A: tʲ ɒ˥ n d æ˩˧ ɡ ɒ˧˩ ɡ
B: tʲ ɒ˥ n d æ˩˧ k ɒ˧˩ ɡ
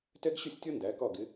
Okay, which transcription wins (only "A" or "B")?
B